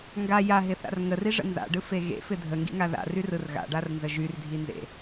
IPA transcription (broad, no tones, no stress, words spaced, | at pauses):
ŋɡa jaɦɪθa̰r ŋəriʐə̰ nza̰ɖɯfe ɣḛfɪ dʱəŋɡḭŋa ða̰ryrɯr ɣa̰ɖarnzə ʒyrdʱinzḛ